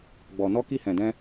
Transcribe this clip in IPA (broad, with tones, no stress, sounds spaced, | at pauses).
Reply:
ɡ͡b ɔ˨ n ɔ˧ k i˧ h ɛ̃˨ d ɛ̃˧